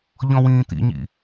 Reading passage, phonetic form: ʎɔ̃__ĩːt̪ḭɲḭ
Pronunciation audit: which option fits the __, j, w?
w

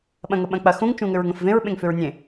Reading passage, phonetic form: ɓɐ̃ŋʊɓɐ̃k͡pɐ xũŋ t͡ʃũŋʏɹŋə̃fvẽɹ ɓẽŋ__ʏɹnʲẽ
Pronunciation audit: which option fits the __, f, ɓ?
f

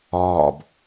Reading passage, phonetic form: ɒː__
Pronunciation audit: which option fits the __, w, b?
b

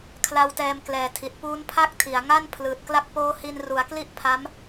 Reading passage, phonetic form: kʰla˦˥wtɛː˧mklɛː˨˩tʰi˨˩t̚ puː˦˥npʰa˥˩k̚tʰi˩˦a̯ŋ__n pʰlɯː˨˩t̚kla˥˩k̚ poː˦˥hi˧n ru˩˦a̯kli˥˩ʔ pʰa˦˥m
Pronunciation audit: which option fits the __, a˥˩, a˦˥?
a˥˩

